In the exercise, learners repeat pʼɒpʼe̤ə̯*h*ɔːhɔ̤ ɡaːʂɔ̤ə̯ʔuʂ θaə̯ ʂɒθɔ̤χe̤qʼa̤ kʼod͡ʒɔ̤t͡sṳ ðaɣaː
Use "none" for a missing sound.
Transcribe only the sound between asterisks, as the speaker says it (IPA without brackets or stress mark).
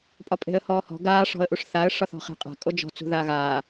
h